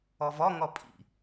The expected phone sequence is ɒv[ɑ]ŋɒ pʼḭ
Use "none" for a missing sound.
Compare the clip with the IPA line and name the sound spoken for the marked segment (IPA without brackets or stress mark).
ɒ